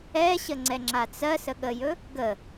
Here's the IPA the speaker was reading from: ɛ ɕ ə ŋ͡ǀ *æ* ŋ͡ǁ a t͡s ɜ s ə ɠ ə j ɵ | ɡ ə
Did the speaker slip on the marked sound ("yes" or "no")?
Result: yes